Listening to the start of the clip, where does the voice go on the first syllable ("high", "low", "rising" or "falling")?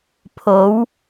rising